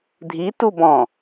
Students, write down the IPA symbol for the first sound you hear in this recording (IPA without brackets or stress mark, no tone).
dʱ